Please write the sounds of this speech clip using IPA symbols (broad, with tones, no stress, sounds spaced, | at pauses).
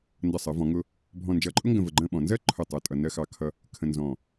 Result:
n d ʌ˧˩ sˤ ɜ˩˧ v ɔ̃˩˧ ŋ ʊ˧ | bʱ ɔ̃˧˩ n d͡ʒ ʌ˧˩ ǃʼ ʊ˥ ŋ ɡ ə̃˧˩ v ə˧˩ ɡ͡ǃ ə̃˥˧ ɓ ɔ̃˩˧ n z ɜ˥ ǃʰ ʊ˧˩ tˤ ɜ˧˩ tʼ ʌ˧ n ɜ˥˧ x ɑ˥˧ kʰ ʌ˥ | kʰ ə̃˧ n z ɔ̃˧˩